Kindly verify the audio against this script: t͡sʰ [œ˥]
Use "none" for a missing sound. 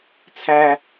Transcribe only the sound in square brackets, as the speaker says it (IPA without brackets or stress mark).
æ˥